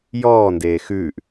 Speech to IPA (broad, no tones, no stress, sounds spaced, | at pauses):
j ɔː n d eː x ʉː ʔ